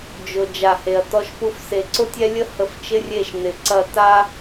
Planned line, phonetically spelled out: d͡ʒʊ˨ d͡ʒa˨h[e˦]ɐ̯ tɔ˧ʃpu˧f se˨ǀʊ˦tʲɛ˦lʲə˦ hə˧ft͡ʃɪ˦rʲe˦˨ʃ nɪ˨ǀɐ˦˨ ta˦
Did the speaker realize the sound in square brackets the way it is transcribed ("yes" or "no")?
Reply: no